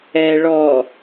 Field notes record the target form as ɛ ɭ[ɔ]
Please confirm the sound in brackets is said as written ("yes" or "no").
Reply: yes